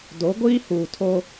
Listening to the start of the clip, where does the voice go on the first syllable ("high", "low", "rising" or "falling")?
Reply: rising